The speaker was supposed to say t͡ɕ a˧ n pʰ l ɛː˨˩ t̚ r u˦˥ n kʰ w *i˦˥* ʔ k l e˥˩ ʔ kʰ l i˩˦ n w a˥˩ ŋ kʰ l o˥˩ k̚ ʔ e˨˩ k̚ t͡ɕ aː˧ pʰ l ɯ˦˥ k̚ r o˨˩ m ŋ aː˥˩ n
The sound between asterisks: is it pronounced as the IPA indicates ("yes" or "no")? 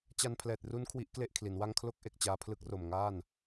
yes